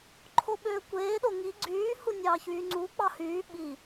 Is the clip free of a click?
no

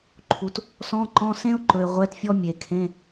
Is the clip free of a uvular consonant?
no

